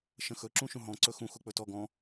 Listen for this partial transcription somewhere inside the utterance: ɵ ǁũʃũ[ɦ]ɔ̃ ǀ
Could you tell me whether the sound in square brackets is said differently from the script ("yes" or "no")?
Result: no